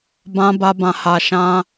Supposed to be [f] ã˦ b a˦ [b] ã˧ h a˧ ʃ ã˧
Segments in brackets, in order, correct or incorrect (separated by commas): incorrect, correct